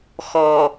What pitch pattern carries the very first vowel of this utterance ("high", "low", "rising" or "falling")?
low